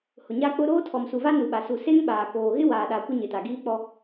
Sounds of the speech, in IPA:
h ʊ˨ ɲ a˦ k͡p ʊ˦ ɾ oː˦ tʰ ɔ˨ m s u˨ v a˦ n u˨ ɓ a˨ s u˨ s e˦ ŋ ɓ aː˨ k oː˨ ɣ ɪ˦ w aː˨ ɗ a˨ kʷ ɪ˦ ɲ ɪ˨ t a˨ ɡ iː˦ k͡p ɔ˦

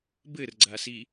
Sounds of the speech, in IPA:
b ɘ r ɡ͡ǀ a s i

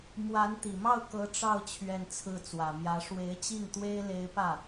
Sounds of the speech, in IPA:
m w a˧˥ n t̪ i˨˩ m ɑ˥˩ ʊ̯ k ɤ˧˥ ʈ͡ʂ ɑ˥˧ ʊ̯ t͡ɕʰ ɥ ɛ˥˧ n t͡sʰ ɹ̩˥˩ t͡s w ä˨˩ m j ä˧˥ ʂ w e˧˥ ɪ̯ t͡ɕ i˥˩ ŋ t̪ w e˥ ɪ̯ l e˧˥ ɪ̯ p ä˥˩

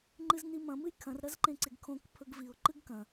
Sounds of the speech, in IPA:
ŋ͡ǃ ɨ z n i m ɐ̃ m ɨ j kʰ ɐ̃ r ɾ ɐ z ǃ ẽ ǀ e ɡ kʰ õ k pʰ ɵ ɡ v i ʊ̯ ǃ ɨ ɡ k ɐ̃

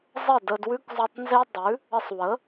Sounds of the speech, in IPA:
zˤ ə˥˩ d ə˧ d w ʉ˥ k zˤ ʉ˧ tˤ n z e˥ dˤ ʉ˩˥ | ə˧ sˤ w ə˩˥

